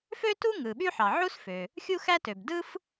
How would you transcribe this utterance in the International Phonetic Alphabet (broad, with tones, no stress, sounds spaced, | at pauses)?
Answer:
f ø˥ t u˥ ŋ ɯ˩ ɓ y˥ ħ ɑ˩ ʕ u˥ s f ø˩ | xʲ u˥ x æ˥ t ø˩ b d ɯ˥ f